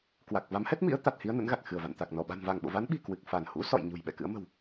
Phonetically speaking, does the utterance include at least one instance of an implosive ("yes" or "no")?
yes